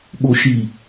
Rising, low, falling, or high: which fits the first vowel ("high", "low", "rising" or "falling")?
low